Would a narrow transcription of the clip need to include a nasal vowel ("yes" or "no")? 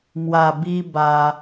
no